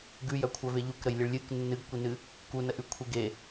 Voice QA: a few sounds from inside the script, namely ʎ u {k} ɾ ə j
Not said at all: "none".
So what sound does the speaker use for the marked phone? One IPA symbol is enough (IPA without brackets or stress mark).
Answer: k